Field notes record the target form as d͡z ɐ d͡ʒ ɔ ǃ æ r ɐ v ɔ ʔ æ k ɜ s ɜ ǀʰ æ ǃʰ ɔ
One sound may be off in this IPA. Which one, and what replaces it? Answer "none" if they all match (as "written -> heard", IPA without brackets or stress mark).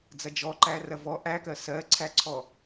ǃʰ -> ǀʰ